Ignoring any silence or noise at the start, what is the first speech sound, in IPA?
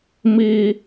m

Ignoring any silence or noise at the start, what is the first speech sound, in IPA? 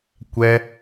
kʷ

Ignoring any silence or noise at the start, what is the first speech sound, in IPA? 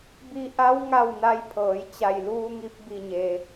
b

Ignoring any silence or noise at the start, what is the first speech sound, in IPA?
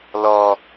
l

